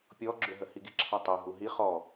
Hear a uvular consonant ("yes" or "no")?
yes